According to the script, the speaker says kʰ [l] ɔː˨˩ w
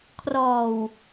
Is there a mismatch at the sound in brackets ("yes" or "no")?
yes